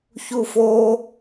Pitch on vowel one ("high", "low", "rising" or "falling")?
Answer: high